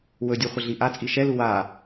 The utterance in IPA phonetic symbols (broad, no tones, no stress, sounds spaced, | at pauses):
w ɵ dʲ u χʷ ə ɮ i ʔ a t͡sʼ i ʃ ɛ l u w a